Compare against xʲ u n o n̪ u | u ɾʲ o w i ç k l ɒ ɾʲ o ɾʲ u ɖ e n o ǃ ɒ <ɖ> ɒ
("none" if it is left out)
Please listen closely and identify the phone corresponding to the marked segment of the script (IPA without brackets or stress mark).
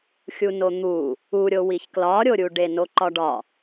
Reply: ɖ